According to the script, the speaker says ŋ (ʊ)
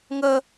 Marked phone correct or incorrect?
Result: incorrect